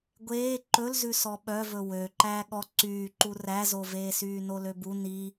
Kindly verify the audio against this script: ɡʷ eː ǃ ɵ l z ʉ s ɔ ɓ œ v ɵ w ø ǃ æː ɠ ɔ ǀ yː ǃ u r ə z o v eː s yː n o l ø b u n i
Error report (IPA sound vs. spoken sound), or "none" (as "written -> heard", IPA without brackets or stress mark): ə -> æ